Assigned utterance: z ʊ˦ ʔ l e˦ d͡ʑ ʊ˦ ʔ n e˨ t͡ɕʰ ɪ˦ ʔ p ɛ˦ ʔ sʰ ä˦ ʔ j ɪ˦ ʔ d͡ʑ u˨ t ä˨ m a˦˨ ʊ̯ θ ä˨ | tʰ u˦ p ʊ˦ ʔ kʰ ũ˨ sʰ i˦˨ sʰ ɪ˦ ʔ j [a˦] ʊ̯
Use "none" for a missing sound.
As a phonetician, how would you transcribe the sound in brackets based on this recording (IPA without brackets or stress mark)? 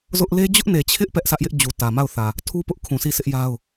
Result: a˦